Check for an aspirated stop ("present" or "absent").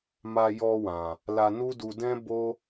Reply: absent